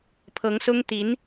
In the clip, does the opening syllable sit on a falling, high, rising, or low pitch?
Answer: rising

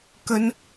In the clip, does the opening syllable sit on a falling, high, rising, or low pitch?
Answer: high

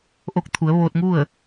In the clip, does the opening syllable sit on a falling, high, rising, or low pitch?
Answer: rising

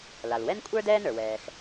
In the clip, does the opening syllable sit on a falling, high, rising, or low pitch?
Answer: low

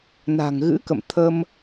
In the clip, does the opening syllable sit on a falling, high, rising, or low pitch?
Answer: low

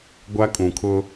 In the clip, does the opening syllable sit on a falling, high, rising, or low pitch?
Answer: high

